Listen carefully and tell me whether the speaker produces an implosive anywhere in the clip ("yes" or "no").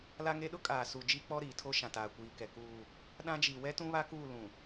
yes